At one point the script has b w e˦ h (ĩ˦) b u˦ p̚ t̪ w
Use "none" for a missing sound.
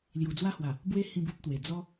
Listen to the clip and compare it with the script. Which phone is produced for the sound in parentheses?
ĩ˦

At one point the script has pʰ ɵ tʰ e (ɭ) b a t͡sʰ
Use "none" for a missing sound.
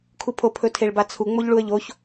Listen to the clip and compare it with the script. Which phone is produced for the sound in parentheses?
ɭ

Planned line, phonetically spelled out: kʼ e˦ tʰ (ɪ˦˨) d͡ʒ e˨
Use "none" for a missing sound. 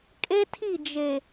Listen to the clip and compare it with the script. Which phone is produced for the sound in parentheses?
i˦˨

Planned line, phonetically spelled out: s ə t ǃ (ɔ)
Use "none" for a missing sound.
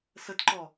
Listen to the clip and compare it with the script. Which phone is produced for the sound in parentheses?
ɔ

